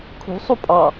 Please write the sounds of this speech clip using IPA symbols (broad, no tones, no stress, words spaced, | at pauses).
kʰṳ sˤupʼɑ